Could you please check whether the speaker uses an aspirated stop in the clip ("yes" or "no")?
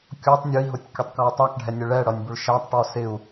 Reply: no